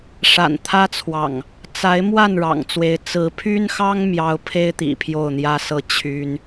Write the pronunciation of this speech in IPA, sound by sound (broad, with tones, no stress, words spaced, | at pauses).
ʂa̰˨˩nt̪ʰä˦t͡sʰwɑ̰˨˩ŋ | t͡sa˨˦ɪ̯ mwa˥˨nɻɑ̰˨˩ŋt͡swe˨˦ɪ̯ t͡sɹ̩˨˦pʰy˦nxɑ˦ŋ mjɑ˦ʊ̯ pʰe˦ɪ̯t̪ḭ˨˩ pʰjo˥˨ʊ̯n̪jä˦sɤ˥˨ t͡ɕʰy˦n